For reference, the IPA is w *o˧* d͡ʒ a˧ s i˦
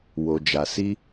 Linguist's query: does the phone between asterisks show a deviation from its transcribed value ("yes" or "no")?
no